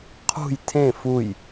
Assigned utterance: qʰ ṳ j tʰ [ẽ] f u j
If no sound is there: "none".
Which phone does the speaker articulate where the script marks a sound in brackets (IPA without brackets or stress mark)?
ẽ